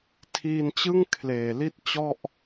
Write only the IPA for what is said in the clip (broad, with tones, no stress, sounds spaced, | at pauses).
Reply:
tʰ iː˧ n t͡ɕ ɯ˥˩ ŋ kʰ l eː˨˩ l i˥˩ t̚ t͡ɕ ɔ˥˩ ʔ